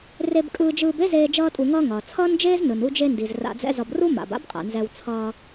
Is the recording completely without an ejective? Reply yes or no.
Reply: no